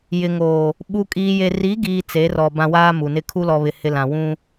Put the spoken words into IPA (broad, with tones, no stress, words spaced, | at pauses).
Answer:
jɪ˨ŋoː˨ | ɓu˨ kʼiː˨je˨ ri˨˦ɡiː˨ t͡se˨˦rɔ˨ bã˦waː˦ mu˨nɪ˦ kʰu˦lɔ˨βɪ˨ hɪ˦ lã˨ wũ˦